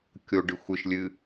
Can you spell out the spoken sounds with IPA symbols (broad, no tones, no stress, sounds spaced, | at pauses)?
kʲ o ɖ ɨ xʷ ɨ ʃ lʲ ɨ